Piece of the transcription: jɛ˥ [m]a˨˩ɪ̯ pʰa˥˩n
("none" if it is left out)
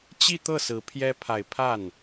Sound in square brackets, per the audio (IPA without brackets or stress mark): pʰ